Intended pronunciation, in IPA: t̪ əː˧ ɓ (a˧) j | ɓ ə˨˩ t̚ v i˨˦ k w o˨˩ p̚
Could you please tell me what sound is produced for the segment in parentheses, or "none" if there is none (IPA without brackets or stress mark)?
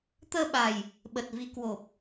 a˨˩